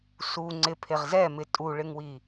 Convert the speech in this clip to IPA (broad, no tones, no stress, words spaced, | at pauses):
su ŋ͡ǀɪpʰeʁ zɛmɪ tʼuɭɪŋwi